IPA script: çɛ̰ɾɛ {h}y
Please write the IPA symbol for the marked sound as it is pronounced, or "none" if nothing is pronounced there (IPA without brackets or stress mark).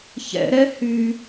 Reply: h